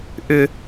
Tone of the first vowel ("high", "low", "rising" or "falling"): high